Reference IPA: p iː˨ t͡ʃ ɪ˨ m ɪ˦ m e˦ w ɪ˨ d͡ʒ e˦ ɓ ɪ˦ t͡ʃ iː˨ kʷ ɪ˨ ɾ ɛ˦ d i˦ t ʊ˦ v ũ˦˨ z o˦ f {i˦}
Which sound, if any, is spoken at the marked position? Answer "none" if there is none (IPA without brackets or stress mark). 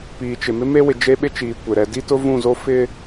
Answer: ɪ˦